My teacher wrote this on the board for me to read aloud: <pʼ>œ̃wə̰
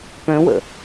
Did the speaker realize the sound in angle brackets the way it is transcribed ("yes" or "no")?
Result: no